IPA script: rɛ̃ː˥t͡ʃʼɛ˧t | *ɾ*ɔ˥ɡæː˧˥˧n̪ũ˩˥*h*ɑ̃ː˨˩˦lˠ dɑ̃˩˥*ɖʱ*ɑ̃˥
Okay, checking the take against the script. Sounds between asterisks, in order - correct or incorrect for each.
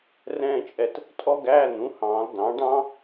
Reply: incorrect: tʼ, correct, incorrect: ɖ

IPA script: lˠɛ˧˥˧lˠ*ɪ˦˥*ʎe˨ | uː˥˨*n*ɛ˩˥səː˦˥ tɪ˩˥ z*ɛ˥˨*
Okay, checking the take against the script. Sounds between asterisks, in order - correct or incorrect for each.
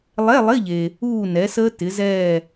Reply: incorrect: ɪ˧˥˧, correct, incorrect: ɛː˥˨

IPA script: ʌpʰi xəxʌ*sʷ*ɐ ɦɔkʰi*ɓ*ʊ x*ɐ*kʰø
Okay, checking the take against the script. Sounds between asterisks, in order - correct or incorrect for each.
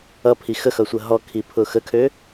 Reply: correct, incorrect: pʰ, incorrect: ə

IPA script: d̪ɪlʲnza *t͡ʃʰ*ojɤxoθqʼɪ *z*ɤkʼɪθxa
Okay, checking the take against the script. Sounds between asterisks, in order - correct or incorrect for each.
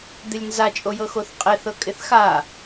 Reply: incorrect: t͡ʃʼ, incorrect: θ

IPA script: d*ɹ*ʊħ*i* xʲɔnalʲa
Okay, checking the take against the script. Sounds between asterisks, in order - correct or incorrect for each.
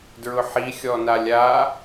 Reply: correct, correct

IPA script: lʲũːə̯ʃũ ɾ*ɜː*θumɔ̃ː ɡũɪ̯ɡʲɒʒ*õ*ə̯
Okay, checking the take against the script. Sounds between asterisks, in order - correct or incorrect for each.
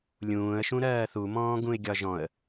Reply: correct, incorrect: ɔ̃

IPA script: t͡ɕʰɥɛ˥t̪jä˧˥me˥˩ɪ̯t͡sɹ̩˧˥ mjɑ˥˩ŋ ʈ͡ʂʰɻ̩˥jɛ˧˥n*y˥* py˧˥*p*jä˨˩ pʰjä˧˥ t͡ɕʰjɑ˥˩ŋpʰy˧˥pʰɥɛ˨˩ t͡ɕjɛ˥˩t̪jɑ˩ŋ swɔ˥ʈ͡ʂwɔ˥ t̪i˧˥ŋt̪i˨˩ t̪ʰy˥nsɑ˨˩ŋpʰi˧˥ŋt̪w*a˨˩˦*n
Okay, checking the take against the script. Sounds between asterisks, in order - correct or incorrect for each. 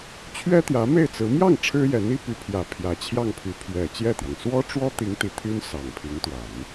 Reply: incorrect: i˥, incorrect: pʰ, correct

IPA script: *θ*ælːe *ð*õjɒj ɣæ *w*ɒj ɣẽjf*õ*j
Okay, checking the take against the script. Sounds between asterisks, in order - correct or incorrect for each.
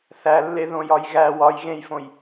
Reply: correct, correct, correct, correct

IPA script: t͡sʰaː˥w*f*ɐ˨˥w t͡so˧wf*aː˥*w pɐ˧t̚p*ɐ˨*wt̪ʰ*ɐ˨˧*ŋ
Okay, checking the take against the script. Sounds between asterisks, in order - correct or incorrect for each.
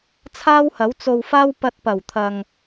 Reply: incorrect: h, correct, incorrect: ɐ˨˩, incorrect: ɐ˨

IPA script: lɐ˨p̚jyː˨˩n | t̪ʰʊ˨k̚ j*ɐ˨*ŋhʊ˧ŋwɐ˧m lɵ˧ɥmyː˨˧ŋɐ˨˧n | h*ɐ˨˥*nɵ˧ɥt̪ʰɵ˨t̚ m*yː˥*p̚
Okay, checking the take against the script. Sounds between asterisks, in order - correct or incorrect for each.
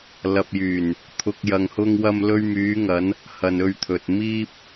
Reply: correct, incorrect: ɐ˨, incorrect: iː˥

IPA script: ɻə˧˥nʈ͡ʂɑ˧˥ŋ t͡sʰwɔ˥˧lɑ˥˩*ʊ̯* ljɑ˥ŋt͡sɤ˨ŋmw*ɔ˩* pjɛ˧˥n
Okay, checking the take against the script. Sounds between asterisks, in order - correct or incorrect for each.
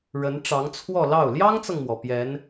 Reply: correct, correct

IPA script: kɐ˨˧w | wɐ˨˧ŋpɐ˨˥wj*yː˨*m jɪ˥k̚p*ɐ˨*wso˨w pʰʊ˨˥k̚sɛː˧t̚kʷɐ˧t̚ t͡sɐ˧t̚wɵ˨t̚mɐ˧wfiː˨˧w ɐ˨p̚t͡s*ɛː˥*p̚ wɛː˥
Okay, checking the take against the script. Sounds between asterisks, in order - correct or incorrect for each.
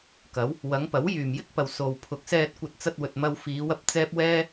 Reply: correct, correct, correct

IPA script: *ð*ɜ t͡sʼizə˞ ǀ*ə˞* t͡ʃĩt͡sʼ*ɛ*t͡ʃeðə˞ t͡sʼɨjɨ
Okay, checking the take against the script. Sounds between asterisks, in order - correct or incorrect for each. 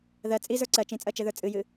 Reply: correct, incorrect: ɜ, incorrect: ɜ

